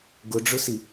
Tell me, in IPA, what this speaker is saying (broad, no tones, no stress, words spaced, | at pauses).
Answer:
ɡʊɖ͡ʐʊsi